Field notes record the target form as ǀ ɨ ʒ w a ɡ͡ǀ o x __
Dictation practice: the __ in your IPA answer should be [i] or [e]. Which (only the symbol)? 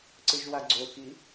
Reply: i